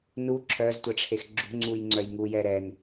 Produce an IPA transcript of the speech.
n u ǁʰ œ z tʷ ɛ ʈ͡ʂʰ e x ɡ͡ǁ ṳ ŋ͡ǀ u j ŋ͡ǀ œ j ŋ u j ɛ ɾ ɛ n

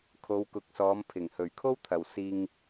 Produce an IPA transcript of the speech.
kʰ o˨˧ w k ʊ˨ k̚ s ɔː˨˧ m pʰ ɪ˨˩ ŋ h ɵ˨˩ ɥ kʰ o˥ w t̪ʰ ɐ˨ w s iː˧ ŋ

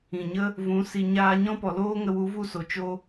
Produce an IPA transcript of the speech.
ĩ˨ ɲ ə˦ | v ũ˨˦ s i˨ ɲ aː˧ ɲ ɔ̃˦ p ɔ˨ l oː˦ ŋ ə˧ w u˨˦ v u˦˨ s o˨ t͡ʃ o˧

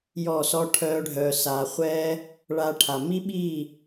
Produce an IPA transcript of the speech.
j ɔ˦˨ s ɔ˦ ʈʰ œː˦ ɖʱ œː˧ s aː˧ χʷ ɛː˦ | ɭ a˧ ʈʰ a˨ m i˦ ɓ i˦˨

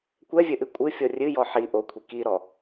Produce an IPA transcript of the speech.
kʷ ɛ vʲ ɘ ʔ ɨ kʷʼ ɨ fʲ ɔ rʲ ɨ j ɔ ħ i ʔ o kʷʰ i k i ɾ ɔ

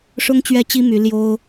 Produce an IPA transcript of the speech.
ʂ ʊ˥ ŋ t͡ɕ ɥ ɛ˥ t͡ɕ i˥ m y˧˥ l j o˥ ʊ̯

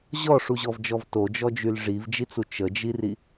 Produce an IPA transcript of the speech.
ʑ ɔ ʂ u ʑ ɔ v d͡ʒ ɔ v t o d͡ʒ ɔ d͡ʒ y l ʐ i v d͡ʒ i t͡s u t͡ʃ ə d͡ʒ i r i

